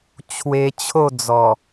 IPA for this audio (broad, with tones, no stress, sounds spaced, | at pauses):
t͡ɕʰ w e˧ t͡ɕʰ o˥˧ d͡z ɔ˨˩